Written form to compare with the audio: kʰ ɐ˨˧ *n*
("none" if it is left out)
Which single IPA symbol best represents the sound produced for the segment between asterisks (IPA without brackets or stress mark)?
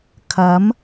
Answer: m